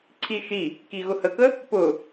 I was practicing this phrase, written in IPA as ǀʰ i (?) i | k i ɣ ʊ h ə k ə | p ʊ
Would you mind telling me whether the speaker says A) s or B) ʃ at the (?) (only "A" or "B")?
B